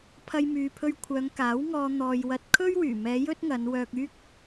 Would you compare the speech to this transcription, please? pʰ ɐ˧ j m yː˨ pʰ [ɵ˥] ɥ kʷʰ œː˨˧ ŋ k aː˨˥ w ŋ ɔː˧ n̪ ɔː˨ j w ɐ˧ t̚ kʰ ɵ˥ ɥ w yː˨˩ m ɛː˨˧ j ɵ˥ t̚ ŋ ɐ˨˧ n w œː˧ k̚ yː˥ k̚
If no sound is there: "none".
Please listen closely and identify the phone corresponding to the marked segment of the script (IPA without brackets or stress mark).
ɵ˧